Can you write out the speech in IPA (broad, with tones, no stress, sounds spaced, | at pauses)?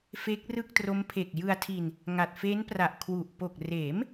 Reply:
f e˦˥ k̚ r ɯ˥˩ k̚ t r o˦˥ m pʰ e˨˩ k̚ j ɯ˧ a̯ tʰ i˧ n | ŋ a˨˩ t̚ f e˦˥ n p r a˨˩ ʔ kʰ w u˨˩ ʔ p o˨˩ k̚ r eː˩˦ m